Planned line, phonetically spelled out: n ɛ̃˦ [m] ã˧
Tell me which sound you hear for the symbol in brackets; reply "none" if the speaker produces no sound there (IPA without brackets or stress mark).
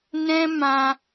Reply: m